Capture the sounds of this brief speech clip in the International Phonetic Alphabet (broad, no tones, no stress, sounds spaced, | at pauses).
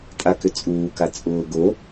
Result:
tʼ a k ʏ t͡sʼ uː k a t͡sʼ ʊː ɡ o